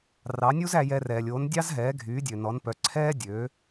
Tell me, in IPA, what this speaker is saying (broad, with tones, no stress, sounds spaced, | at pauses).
r ɑ˩˥ nʲ u˥ z æ˧ j ɛ˧ r ɛː˩ lʲ o˩˥ n dʲ ɑ˥ z ɦ ɛː˩˥ ɡʱ yː˩˥ dʲ ø˩ n ɔ˩˥ n p œ˩˥ ǀʰ ɛː˥ dʲ ø˩˥